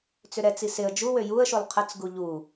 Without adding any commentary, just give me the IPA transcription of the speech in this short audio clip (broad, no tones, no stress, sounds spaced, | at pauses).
t͡s ʏ ɾ ɛ t͡s i s ɪ ə̯ d͡ʒ u w ø j u ə̯ ʃ u lˠ qʰ ə t͡s ɡ u ʎ u